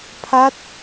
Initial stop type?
aspirated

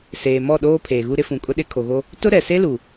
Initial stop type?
implosive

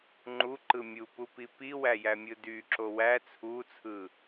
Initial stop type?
click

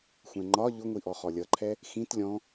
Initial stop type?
click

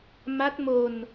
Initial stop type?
plain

